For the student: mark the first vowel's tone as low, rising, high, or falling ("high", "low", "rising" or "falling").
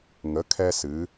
rising